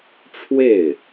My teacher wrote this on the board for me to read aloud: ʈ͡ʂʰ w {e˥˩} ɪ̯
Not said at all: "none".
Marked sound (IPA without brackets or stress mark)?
e˥˩